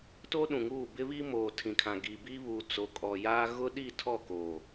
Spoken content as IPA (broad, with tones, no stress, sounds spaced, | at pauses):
t o˦ ɗ ũ˨ ŋ uː˦˨ b ɪ˦ β i˦ m oː˨ tʰ ĩ˨ kʰ ã˨ ɡ i˨ b i˦ β u˨ t͡s o˨ kʼ ɔ˨ j aː˦ ɣ ʊ˦ ɗ i˦˨ tʰ ɔ˦˨ k oː˨